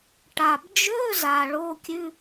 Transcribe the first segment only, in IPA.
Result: ʈ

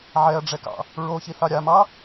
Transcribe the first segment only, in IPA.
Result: ʕ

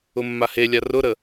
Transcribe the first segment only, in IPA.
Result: ʊ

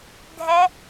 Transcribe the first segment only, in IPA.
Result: dʱ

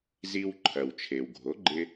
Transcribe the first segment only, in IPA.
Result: z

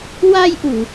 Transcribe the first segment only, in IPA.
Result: w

